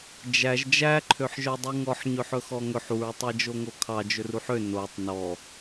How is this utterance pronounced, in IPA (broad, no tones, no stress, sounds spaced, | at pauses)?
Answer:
d͡ʒ æ ʒ d͡ʒ æ ǃʰ ø ħ ʒ œ dˤ u ŋ ɔ ħ ɲ ɵ ħ ɵ x ɔ ŋ ɵ ħ u ɹ tˤ æ d͡ʒ o ŋ o kʰ ɑ d͡ʒ ɵ r u ħ ø n o tˤ n ɔ